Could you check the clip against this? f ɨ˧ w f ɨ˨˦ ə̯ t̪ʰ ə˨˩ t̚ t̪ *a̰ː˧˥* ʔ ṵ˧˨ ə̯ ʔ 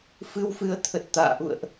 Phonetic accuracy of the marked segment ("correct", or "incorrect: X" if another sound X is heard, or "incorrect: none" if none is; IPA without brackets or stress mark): incorrect: a̰ː˧˨